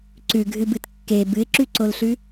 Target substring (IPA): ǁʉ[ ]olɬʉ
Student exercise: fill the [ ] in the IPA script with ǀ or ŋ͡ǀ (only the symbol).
ǀ